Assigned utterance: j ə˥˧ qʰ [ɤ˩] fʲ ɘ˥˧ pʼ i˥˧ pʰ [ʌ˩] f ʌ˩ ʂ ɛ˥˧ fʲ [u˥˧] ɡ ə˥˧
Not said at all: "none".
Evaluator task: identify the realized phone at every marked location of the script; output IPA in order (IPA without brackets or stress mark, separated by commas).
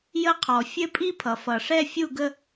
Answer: ɔ˩, ʌ˩, u˥˧